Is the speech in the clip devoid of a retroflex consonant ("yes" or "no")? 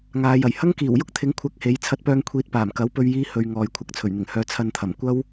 yes